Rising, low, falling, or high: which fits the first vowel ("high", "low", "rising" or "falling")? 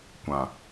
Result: low